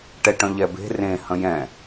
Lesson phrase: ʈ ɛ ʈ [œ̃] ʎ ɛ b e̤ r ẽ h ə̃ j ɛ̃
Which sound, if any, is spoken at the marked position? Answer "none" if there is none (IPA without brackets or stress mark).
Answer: œ̃